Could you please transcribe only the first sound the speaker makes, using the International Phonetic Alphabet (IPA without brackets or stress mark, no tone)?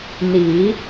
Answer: n